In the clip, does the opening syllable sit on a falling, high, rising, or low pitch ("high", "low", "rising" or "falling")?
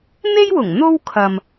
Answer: high